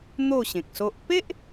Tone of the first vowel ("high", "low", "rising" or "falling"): falling